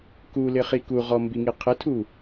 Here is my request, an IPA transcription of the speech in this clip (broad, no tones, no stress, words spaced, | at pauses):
ku lɪχikuʁɔ mbiŋiqʰɪtʰu